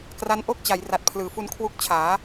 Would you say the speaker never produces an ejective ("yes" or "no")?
yes